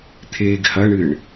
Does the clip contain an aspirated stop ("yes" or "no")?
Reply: yes